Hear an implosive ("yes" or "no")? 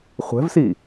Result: no